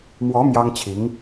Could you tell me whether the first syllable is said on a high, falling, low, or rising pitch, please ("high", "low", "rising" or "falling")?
rising